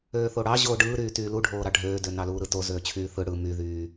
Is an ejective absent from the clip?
yes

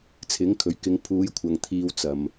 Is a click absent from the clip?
yes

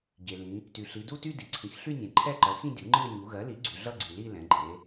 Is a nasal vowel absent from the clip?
no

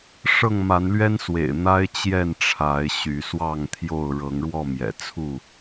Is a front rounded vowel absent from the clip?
no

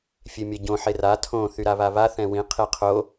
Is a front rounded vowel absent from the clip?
no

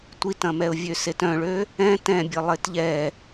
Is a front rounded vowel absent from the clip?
no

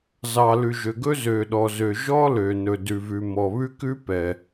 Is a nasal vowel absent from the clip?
yes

